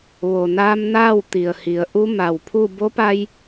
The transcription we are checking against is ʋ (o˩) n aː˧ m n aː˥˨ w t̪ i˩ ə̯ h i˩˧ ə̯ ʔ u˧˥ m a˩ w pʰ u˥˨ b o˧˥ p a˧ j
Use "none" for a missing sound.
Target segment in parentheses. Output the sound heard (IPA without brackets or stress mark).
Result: o˩